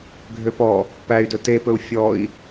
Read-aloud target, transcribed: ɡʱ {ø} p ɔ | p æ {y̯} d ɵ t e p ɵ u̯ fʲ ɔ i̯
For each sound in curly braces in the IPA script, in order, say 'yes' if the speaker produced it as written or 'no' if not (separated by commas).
yes, yes